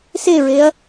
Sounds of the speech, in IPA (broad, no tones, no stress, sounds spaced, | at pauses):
s e ɹ e ɐ̯